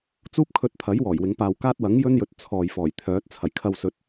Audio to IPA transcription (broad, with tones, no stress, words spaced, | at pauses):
t͡suː˥p̚ kʰɵ˧t̚t̪ʰɐ˨˥j wɔː˨˩jwɪ˨˧ŋpaː˧w kaː˥t̚wɐ˨˥ŋjɵ˥njɵ˨˥t̚ t͡sʰɔː˨jfɔː˨˩j t̪ʰœː˨˥t̚ t͡sʰɐ˨˩jkʰɐ˧wsɵ˨t̚